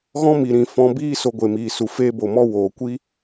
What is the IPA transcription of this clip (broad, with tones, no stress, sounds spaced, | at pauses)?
ɣ ɔ̃˦ m i˨ ɾ ĩ˨ f ɔ̃˨˦ b iː˦ s o˧ ɡʷ e˨ m iː˨ s u˨ f eː˧ b o˨ m ɔ˧ w oː˨ kʷ i˦